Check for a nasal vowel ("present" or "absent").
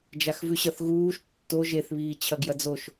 absent